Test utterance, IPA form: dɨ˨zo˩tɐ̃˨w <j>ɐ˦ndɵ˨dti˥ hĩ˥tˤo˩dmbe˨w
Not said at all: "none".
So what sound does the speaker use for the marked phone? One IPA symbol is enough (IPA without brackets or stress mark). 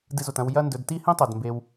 j